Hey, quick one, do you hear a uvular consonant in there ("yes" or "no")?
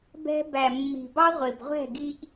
yes